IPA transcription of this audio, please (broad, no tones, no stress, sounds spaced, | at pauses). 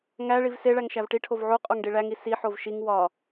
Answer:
ŋ æ ɭ i v s e ɭ æ ŋ ʃ æ v ʈ i ʈʰ o v ʕ u qʼ o ŋ ɖ i ɭ æ ŋ i s i ħ o v ʃ i ŋ w ɒ